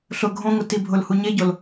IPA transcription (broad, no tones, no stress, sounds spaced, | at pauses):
ɬ ʊ ɡʱ õ ŋ ʊ t i bʱ ʊ l h u ɲ e ɟ o l